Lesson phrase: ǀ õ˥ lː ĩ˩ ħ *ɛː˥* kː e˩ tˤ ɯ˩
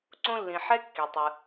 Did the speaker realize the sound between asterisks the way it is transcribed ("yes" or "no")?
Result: no